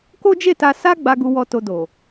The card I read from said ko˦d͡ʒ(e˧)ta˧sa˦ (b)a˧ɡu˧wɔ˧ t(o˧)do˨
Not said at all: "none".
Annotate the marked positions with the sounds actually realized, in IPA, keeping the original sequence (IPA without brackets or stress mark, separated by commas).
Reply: e˦˨, ɡ͡b, o˧